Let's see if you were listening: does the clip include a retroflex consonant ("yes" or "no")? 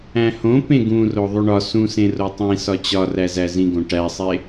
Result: yes